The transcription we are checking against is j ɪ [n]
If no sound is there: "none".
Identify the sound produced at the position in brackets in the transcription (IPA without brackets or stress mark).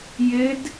d